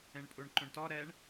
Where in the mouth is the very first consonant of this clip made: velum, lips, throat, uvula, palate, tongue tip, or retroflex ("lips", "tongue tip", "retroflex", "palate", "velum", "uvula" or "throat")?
retroflex